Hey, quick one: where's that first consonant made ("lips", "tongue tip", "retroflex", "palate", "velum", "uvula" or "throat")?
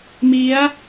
lips